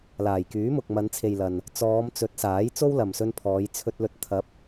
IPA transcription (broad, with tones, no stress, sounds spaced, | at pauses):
l aː˨˩ j k yː˨˥ m ʊ˨ k̚ m ɐ˨˧ n t͡sʰ e˨ j l ɐ˨ n | t͡s ɔː˨˧ m t͡s ɵ˨˥ t̚ s aː˨˥ j t͡s o˥ w l ɐ˨ m s ɵ˧ n pʰ ɔː˨˧ j t͡sʰ ɵ˧ t̚ l ɵ˨ t̚ t̪ʰ ɐ˨˥ p̚